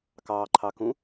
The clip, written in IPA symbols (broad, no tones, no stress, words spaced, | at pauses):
kɑːǃʰɑkũ